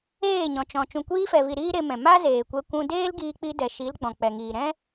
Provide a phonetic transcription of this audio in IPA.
eː˦˨ ɲ ɔ̃˨ t͡ʃ ɔ̃˨ t͡ʃ ũ˨ kʷ iː˧ f ɛ˨ v i˨ ɾ iː˦ ɾ e˧ m ɛ̃˨ m a˦ z eː˨ kʷ ɛ˧ kʷ ũ˧ d eː˦ l ɡ iː˧ k͡p i˧ d ɛ˨ ʃ i˨˦ l ɡ͡b ɔ̃˨ k͡p ɛ˨ ŋ iː˨ ɾ ɛ̃˦

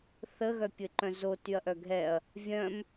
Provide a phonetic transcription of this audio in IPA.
θ ə ɣ œ pʲ ɘ ǃ œ̃ z o t y ɐ̯ ʔ œ ɡʱ ɛ ɐ̯ | vʲ œ̃ m

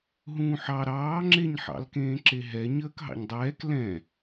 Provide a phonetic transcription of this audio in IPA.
ɦ ũː ħ ɑ ɾ ɑː ŋ͡ǁ e ɲ ħ ɑ̰ l k ẽː ǁ e ɦ ɛ ɲ əː k ɦ ɑ̰ ɲ dˤ ɛː k l ɛ̃

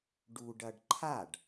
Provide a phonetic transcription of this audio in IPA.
ɖ u ɖ ɐ ɖ ǃʰ a ɖ

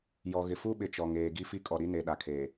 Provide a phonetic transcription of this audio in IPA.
j ɔ˨ ɣ ɪ˨ f u˦ ɓ ɪ˨ t͡ʃ ɔ˨ ŋ eː˨ ɡ i˦ f i˦ kʼ ɔ˨ ɾ i˦ n e˨ ɗ a˨ kʰ eː˨

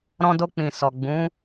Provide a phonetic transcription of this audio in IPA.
ɾ ɔ̃˧ d o˧ k͡p ĩ˨ s ɔ˨ ɡ͡b ũ˨˦

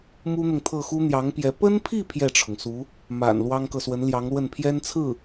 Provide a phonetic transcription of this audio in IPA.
m u˥ n̪ ʊ˨ ŋ t̪ʰ ɤ˥˩ x u˥ n̪ j ɑ˧˥ ŋ p j ɛ˧˥ p ə˥ n pʰ i˥˧ pʰ j ɛ˥˩ ʈ͡ʂʰ ʊ˩ ŋ s u˧˥ | m a̰˨˩ n l w ɑ˥ ŋ k ɤ˨ s w ə˧˥ n l j ɑ˧˥ ŋ l w ə˥˩ n pʰ j ɛ˥ n t͡sʰ ɹ̩˥˩

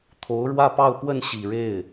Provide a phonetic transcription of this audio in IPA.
t̪ʰ o˧˥ ʊ̯ ɻ w ä˥˧ p ɑ˥˧ ʊ̯ p w ə˥˩ n ɕ i˨˩ ɻ e˥˩ ɪ̯

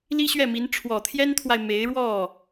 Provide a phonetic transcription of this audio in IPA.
l i˥ ɕ ɥ ɛ˥˩ m i˧˥ n ʈ͡ʂʰ w ɔ˨˩ t̪ʰ j ɛ˥ n t̪ʰ w a˨ ɪ̯ m e˧˥ ɪ̯ ɻ w ɔ˥˩

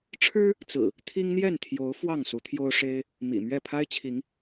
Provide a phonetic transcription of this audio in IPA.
ʈ͡ʂʰ ɻ̩˦ | t͡s ɹ̩˨˩ | t̪ʰ i˦ ŋ n̪ j ɛ˥˨ n t̪ʰ j o˨˦ ʊ̯ f w ɑ˥˨ ŋ s u˨˦ t̪ʰ j o˦ ʊ̯ ʂ e˦ ɪ̯ | m ḭ˨˩ m ɥ ɛ˥˨ pʰ a˦ ɪ̯ t͡ɕʰ i˨˦ ŋ

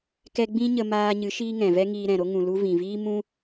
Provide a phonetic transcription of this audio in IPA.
k ɛ˦ ɡ͡b ĩ˦ ɲ ə˧ m aː˧ ɲ ɨ˨˦ ʃ iː˦ ŋ ɛ̃˨ v ɛ˦ ŋ iː˧ ɾ ɛ̃˨ ɾ o˦ ŋ ũ˨ l u˧ v ĩ˨ v iː˦ m ũ˦

